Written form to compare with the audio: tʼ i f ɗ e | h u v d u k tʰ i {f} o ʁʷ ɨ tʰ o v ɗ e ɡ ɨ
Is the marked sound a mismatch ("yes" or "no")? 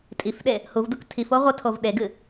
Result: no